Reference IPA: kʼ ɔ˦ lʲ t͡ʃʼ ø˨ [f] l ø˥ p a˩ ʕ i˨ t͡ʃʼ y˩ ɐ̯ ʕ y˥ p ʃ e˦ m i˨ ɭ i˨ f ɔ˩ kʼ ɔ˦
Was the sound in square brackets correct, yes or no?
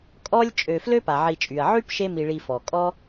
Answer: yes